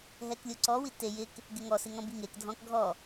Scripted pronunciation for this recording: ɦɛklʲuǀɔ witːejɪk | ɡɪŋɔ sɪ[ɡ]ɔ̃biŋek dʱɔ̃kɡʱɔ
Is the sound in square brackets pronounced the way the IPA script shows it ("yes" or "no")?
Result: no